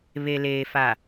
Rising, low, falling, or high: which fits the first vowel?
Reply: low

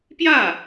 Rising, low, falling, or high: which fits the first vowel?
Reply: falling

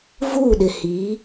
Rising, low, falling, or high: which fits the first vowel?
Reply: falling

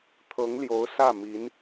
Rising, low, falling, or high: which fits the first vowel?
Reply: rising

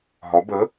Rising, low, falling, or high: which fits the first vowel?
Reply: rising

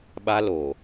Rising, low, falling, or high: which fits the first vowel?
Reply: high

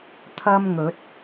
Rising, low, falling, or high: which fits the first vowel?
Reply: high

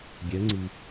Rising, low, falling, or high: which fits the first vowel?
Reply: rising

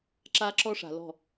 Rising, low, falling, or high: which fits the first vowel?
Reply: high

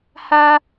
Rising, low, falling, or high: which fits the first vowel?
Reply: high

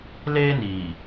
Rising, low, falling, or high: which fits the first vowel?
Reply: high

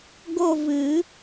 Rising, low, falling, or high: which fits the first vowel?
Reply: falling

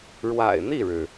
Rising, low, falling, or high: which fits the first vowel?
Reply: low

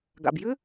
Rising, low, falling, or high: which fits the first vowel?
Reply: low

